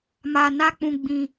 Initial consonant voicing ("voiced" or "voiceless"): voiced